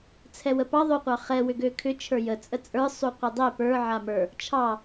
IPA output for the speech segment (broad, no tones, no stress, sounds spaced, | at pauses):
t͡sʰ ɛ w ə p ɑ ðˤ o qʷ ɑ χ ɛ w ʏ ɡ ø kʰ ʏ t͡ʃʰ ə˞ j ə t͡sʼ ə t͡sʼ ə˞ sˤ u qʷ ə˞ dˤ ɛ p ə˞ ʕ a m ə˞ | t͡ʃʰ ɑ